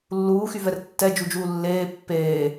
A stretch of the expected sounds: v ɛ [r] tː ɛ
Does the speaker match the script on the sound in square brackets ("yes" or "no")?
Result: yes